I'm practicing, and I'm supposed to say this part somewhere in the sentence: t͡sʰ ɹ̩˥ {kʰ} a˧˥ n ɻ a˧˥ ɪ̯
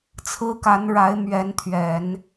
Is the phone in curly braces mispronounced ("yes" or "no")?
yes